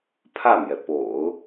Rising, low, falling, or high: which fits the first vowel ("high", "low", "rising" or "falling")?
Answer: falling